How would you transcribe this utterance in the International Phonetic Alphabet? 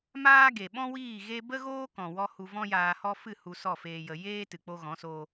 maː˦ɡe˨ ɓɔ̃˦wiː˦˨ ɣe˦ bə˦ɣoː˦kɔ̃˨wɔ˧ hu˧vɔ̃˦jaː˧ hɔ˦ fɨ˦˨ hu˧sɔ˦˨feː˧jə˧ jeː˦ tɨ˨k͡po˧ɣɔ̃˨˦soː˧

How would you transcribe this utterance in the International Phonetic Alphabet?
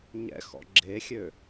ɲɛ̰xɔ̰ ɡ͡ǁexʲø

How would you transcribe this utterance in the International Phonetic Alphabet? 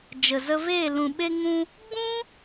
d͡ʒə˨zə˧veː˦˨ lũ˨ɓe˧ŋũ˧ | ɡ͡bũ˦

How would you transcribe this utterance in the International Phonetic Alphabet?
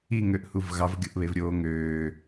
iŋøʔhuv ɣɑvɡʲoʔβevɾʲoː ŋøː

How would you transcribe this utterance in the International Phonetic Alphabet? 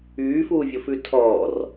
yːfuːvʲofʉ tʰɔːr

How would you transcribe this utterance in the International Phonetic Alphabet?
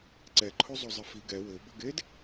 ǀɛǃʰozˤo zˤɪfi ɡɛ wɘbɘɡed

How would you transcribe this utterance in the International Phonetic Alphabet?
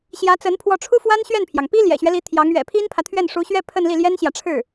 ɕjä˧˥t͡sə˧˥npʰwɔ˧˥ʈ͡ʂʰu˥ fwa˥nɕɥɛ˥˩npʰjɑ˩ŋ pi˥ ljɛ̰˨˩ɕɥɛ˦li˧˥ t̪ʰjɑ˧˥ŋ ɥɛ̰˨˩pʰi˥npʰä˨ t̪ʰɥɛ˥˩nʂu˧˥ɕɥɛ˥ pʰə˥˧nli˥˩ljɛ˥nɕjä˨ ʈ͡ʂʰɻ̩˥˩

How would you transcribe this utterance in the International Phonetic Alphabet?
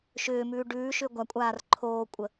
ʃʏːmʉː ɖʉːʃʏ ɡʷakʷʼaːr ǃʰoːkʷʼə

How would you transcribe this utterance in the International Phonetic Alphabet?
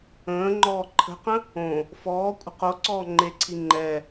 ə̃ːŋ͡ǃɔː ǃʰə̤qə̃ | õ | fɔː kʷʼə̤qoǀɔː ŋ͡ǃeǀʰi ŋ͡ǃɛ

